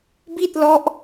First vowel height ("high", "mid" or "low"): high